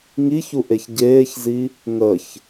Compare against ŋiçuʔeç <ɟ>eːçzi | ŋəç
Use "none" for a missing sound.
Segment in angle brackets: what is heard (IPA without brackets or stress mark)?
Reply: ɟ